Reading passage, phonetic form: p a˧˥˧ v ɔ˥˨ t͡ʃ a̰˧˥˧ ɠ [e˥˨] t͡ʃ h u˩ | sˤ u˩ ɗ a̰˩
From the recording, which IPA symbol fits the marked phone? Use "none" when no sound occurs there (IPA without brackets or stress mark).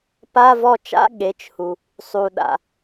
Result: e˩˧˩